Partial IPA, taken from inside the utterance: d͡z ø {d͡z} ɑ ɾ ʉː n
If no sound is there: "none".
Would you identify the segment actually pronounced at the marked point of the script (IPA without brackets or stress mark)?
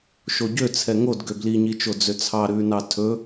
t͡sʰ